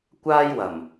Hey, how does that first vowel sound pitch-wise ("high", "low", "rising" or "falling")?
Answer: high